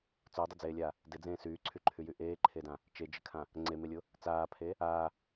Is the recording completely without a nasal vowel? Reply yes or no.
no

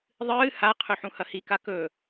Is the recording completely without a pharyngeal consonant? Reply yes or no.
no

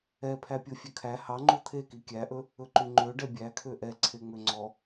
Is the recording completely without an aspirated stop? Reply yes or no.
no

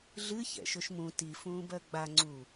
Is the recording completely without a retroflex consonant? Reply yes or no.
yes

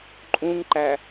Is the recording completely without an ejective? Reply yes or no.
no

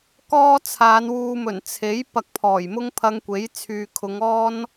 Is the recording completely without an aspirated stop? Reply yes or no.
no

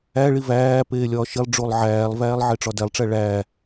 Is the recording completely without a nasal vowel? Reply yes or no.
yes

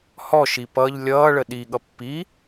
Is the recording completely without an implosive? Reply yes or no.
no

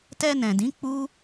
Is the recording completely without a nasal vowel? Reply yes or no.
no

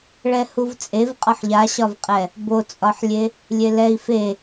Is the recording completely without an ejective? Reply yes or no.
no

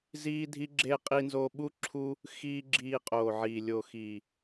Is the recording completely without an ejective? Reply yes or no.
no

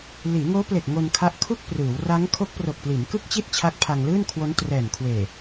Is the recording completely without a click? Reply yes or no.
yes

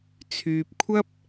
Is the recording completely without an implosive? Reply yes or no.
yes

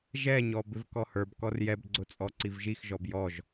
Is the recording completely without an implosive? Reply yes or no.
yes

